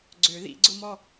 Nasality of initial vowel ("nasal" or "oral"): oral